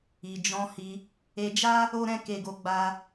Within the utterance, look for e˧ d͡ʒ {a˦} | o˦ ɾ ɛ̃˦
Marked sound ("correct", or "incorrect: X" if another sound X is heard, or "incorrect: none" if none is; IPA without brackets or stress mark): correct